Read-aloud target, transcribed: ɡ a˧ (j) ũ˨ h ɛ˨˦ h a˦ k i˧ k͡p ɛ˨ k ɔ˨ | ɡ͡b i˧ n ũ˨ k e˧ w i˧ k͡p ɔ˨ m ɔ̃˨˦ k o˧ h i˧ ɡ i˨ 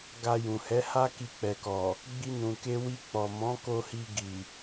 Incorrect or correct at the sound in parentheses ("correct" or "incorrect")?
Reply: correct